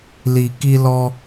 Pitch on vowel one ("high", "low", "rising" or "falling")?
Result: low